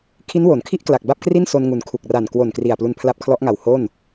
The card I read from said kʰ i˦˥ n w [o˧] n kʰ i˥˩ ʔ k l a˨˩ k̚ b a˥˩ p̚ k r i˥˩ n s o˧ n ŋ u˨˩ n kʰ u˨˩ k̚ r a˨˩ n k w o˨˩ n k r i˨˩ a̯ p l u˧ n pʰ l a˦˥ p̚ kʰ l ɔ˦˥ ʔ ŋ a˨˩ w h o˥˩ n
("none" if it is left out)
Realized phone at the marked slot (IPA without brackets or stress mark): o˩˦